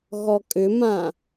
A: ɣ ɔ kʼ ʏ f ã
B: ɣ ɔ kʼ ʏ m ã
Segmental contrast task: B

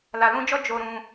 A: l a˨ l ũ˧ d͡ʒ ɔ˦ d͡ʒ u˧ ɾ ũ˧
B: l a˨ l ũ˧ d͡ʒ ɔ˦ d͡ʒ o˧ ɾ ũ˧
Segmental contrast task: B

